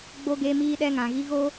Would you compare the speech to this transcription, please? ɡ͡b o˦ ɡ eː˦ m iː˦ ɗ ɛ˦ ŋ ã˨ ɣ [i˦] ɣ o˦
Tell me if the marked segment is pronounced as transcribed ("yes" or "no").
yes